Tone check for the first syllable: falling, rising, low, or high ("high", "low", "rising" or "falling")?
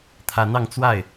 rising